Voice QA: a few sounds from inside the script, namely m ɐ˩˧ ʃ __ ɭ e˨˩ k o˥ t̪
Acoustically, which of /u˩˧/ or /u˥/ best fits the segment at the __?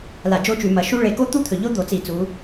u˥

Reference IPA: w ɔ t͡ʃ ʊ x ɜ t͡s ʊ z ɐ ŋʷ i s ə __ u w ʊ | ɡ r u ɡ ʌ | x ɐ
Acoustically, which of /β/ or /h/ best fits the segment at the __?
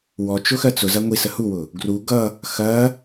h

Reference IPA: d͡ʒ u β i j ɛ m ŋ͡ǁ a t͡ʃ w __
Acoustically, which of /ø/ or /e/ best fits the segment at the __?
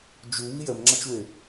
e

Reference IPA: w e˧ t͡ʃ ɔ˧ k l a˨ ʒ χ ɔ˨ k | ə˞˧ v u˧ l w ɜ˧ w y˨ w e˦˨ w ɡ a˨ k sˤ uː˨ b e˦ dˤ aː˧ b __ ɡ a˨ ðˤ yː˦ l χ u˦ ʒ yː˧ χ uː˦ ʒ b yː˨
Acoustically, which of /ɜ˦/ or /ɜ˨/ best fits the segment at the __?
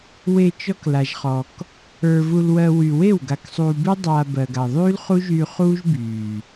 ɜ˨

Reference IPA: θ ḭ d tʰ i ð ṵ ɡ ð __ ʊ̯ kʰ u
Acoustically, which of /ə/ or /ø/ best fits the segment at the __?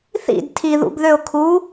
ø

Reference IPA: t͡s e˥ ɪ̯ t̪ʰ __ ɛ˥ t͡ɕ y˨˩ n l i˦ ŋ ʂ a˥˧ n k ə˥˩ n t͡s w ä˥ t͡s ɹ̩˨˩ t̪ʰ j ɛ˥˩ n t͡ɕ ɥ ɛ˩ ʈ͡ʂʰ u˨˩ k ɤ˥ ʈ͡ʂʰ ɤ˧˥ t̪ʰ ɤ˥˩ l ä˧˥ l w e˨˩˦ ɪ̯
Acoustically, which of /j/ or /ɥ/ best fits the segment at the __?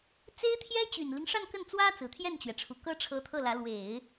j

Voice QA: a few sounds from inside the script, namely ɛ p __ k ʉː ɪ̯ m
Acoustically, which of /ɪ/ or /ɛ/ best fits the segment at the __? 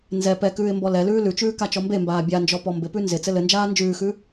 ɛ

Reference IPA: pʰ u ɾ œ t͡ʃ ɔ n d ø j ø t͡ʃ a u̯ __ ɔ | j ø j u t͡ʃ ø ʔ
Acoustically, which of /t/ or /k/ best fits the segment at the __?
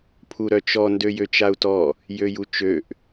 t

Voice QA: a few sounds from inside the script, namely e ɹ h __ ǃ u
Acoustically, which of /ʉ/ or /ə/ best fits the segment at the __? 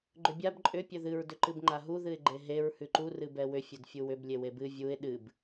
ʉ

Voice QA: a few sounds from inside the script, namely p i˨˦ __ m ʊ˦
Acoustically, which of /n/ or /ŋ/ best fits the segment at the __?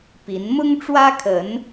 n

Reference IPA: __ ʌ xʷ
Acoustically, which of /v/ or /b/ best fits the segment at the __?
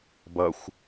b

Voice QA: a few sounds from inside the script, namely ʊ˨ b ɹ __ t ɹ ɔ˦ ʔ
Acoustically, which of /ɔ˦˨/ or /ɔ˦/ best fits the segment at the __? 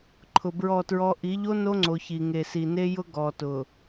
ɔ˦˨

